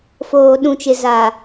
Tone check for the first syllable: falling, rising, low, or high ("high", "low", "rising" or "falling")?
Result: low